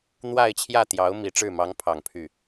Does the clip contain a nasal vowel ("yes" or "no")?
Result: no